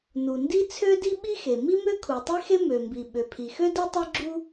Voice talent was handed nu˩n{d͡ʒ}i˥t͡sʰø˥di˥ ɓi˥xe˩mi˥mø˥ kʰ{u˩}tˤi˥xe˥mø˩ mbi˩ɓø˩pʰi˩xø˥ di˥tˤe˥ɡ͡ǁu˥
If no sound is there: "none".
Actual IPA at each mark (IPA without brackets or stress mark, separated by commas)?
d, u˩